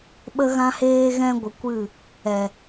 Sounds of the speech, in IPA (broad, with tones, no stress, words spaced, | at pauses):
ɓə˦ɣã˦heː˦ɣɛ̃˦ ɡʷə˧kʷɨ˦˨ | ɛ˨